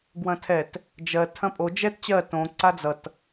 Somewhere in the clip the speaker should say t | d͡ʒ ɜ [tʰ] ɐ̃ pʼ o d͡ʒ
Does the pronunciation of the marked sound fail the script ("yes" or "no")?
no